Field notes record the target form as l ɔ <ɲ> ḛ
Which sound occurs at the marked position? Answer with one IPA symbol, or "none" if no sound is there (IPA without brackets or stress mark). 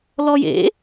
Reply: j